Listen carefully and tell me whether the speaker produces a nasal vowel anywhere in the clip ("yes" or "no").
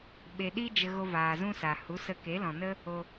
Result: yes